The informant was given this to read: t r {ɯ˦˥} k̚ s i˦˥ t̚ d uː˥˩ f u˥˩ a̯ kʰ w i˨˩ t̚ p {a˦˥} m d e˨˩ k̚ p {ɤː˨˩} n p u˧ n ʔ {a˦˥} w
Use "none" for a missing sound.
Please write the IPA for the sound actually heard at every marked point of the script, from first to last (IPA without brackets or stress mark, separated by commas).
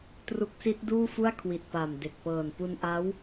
u˦˥, a˨˩, ɤː˨˩, a˦˥